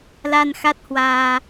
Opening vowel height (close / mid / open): open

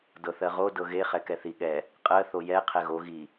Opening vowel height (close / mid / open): mid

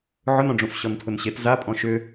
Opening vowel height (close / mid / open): close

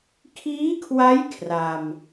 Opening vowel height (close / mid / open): close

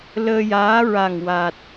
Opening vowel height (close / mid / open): mid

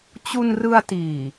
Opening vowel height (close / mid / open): close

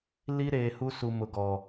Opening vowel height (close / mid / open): close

